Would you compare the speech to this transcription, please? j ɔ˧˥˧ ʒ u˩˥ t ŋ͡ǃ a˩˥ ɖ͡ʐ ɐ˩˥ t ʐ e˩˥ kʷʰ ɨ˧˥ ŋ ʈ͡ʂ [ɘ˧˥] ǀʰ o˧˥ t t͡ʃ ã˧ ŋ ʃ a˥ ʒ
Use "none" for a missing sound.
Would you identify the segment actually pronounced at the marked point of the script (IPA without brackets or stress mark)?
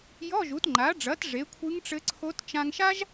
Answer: ɘ˧˥